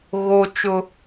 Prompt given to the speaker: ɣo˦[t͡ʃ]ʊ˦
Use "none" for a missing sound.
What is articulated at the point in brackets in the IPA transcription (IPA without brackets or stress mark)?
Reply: t͡ʃ